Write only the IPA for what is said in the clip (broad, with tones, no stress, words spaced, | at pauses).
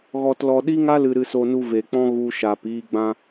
ɣɔ˧tlɔ˧ɗi˦ŋa˦ lɨ˧ɾɨ˧so˧nu˧ ve˨k͡pɔ̃˦ ɣu˧ ʃaː˨piː˧ɡ͡bã˧